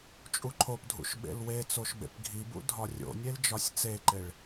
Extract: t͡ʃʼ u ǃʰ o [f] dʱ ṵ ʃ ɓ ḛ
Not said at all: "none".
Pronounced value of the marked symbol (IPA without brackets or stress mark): p